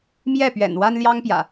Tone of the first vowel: falling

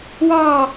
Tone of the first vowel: falling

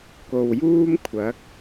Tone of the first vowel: low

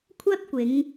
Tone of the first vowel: high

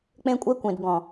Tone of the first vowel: high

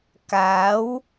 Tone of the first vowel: rising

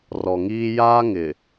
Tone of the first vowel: low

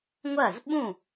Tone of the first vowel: falling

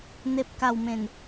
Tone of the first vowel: low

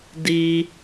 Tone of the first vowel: high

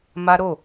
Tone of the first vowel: high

